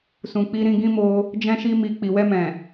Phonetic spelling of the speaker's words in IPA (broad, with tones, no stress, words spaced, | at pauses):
sũ˨k͡pi˧ ɾĩ˧ɡĩ˦ mo˧ | d͡ʒɛ̃˦ʃi˦mi˧ k͡pi˨wɛ˧mɛ̃˨